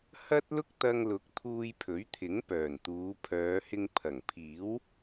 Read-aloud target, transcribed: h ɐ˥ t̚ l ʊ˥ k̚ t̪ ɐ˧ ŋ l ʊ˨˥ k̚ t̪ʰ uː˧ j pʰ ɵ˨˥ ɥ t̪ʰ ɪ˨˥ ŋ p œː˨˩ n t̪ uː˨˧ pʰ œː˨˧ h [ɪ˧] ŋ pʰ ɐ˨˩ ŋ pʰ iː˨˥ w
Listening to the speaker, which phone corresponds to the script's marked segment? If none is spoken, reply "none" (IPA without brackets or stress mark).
ɪ˧